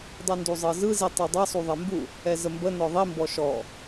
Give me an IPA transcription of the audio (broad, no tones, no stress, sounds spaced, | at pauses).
dˤ ɛ n d u zˤ ɤ z ɯ z i tˤ ɛ dˤ ɤ sˤ u ðˤ ɛ m b u | ɛ z ə m b ə n ɔ ðˤ i m b ɔ ʃ ɔ